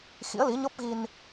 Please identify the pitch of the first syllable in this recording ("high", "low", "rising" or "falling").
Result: rising